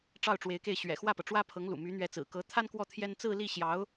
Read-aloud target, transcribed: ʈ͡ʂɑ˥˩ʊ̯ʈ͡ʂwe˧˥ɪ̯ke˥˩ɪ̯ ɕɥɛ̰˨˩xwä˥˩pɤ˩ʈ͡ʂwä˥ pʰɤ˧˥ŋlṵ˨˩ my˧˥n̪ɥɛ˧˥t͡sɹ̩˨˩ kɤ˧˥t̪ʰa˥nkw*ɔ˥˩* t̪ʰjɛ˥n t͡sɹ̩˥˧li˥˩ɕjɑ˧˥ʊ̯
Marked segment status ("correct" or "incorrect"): correct